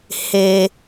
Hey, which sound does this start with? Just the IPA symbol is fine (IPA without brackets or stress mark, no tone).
h